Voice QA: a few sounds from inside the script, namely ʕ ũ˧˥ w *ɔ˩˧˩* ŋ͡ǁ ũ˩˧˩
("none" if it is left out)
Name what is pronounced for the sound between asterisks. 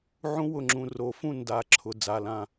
ʊ˩˧˩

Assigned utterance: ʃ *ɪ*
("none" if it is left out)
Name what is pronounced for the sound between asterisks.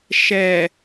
ɛ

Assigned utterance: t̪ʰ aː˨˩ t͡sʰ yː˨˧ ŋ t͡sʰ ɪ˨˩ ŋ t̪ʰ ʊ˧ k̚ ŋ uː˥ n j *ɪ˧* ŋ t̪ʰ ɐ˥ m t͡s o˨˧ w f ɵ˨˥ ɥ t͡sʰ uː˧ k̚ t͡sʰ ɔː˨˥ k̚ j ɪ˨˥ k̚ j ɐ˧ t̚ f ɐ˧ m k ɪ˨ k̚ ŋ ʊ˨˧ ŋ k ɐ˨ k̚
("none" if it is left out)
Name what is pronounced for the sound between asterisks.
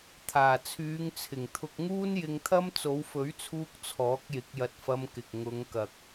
ɪ˧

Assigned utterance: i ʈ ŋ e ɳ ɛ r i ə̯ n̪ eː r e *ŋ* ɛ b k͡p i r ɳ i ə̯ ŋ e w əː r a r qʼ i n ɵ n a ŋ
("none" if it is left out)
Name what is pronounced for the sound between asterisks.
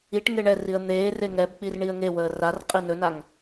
ŋ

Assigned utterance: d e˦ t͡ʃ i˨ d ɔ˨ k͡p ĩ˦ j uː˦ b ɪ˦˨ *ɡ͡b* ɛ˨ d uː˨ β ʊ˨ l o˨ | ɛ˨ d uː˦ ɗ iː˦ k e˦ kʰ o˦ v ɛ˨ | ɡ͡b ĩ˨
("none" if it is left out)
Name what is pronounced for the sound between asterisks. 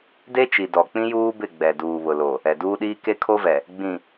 ɡ͡b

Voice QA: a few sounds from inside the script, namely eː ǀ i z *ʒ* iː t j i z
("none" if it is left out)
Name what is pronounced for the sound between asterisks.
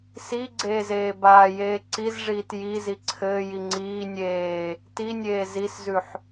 ʐ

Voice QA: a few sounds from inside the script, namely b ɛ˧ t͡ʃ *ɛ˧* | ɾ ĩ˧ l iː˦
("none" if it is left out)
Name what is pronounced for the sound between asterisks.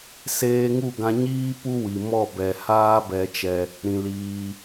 ɛ˧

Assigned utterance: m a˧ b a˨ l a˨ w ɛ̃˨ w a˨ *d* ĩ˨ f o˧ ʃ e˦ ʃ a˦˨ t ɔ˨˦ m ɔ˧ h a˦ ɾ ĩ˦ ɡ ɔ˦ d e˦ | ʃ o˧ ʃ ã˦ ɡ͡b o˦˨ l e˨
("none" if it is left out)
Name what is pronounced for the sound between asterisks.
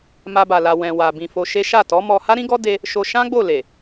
b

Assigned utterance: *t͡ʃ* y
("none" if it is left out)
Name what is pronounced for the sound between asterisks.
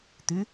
t̪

